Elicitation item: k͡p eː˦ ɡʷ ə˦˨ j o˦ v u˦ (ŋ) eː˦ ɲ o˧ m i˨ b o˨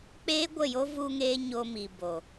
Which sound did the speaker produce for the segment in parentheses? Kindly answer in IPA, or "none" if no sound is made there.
ŋ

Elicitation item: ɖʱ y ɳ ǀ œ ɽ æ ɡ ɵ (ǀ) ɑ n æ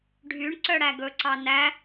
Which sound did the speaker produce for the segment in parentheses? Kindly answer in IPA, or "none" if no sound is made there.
ǀ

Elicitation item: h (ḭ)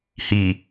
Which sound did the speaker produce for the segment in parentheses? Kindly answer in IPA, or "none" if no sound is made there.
i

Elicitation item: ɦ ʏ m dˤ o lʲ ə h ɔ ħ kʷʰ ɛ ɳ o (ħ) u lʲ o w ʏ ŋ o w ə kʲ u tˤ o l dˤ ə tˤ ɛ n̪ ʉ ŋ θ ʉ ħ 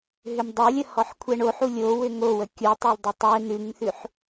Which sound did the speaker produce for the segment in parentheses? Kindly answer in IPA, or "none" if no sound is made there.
ħ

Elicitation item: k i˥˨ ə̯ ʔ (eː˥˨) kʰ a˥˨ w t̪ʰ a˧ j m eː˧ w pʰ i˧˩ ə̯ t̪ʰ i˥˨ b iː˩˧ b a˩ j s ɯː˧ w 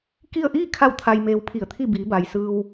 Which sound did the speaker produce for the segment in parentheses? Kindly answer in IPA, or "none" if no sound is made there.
iː˥˨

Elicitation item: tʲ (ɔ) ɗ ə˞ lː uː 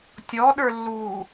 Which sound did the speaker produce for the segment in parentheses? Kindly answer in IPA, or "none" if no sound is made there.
ɔ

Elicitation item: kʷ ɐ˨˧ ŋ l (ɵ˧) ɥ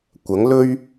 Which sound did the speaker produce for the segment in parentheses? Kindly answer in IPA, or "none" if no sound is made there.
ɵ˧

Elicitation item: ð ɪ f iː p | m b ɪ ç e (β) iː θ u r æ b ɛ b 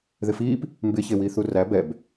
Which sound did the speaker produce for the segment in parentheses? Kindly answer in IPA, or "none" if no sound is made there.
w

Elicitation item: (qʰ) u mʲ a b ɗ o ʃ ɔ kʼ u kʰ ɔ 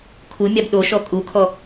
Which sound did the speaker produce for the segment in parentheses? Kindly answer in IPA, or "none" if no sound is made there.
kʰ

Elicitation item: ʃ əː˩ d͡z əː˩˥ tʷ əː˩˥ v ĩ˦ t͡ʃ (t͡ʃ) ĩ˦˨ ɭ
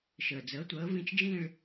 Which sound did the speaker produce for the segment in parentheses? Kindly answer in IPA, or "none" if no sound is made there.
d͡ʒ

